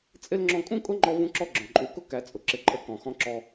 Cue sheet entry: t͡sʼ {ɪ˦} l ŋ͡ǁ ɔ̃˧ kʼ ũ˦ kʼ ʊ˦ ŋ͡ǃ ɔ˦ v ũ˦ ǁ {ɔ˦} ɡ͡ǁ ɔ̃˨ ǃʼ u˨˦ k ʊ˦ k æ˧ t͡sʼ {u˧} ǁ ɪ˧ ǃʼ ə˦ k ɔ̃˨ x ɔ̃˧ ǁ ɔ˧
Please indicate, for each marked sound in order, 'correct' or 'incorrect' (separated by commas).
correct, correct, incorrect